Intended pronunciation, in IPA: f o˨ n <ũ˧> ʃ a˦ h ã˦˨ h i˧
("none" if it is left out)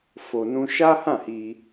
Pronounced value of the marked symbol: ũ˧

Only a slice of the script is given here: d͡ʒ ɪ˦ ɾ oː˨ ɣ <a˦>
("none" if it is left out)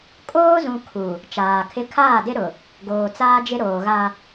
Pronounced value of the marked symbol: a˦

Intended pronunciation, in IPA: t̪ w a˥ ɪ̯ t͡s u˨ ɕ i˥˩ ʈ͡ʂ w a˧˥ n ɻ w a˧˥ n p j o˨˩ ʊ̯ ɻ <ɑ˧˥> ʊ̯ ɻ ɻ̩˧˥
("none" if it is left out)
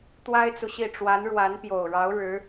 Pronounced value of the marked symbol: ɑ˧˥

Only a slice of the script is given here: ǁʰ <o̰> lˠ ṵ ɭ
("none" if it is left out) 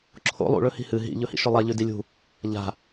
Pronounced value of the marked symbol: o̰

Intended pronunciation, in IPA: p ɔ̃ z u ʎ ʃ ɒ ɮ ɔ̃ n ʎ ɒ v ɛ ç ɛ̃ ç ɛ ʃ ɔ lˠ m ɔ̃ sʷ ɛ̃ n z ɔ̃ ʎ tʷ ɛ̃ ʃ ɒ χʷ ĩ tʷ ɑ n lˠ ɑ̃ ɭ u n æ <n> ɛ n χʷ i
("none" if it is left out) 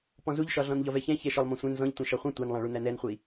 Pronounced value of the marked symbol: n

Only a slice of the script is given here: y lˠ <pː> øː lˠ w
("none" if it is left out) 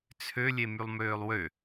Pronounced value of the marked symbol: m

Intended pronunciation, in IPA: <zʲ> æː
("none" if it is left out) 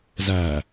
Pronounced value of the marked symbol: z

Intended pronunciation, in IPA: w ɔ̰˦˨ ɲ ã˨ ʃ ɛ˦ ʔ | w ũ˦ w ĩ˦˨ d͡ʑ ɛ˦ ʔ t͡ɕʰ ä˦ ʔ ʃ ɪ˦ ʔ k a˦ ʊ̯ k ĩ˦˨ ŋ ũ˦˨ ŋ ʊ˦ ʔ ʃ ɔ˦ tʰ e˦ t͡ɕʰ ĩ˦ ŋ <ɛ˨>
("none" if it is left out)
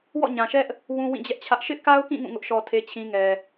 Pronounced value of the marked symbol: ɛ˨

